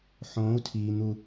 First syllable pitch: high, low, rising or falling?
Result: rising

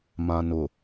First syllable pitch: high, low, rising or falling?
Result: low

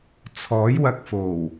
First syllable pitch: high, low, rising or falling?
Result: rising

